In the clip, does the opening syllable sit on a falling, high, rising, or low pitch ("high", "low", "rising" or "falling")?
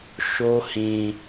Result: high